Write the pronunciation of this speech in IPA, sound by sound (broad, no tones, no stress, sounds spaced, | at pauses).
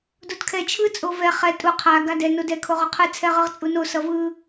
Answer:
d o d kʰ ɛ t͡ʃʰ ɯ t͡sʼ o v ɛ χ ɛ tʼ u qʰ a ɡ a d ɛ n o d ɛ kʰ o ʁ o qʰ ɯ t͡sʰ ɛ ʁ ɯ ʁ t͡sʼ u n o s ʌ v ɯ